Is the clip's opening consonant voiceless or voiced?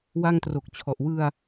voiced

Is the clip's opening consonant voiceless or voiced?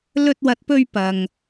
voiced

